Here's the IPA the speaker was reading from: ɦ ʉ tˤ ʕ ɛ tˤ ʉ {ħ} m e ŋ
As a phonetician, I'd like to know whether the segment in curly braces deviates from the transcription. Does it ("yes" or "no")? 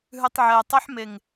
no